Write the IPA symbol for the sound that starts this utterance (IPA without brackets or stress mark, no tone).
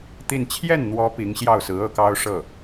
t̪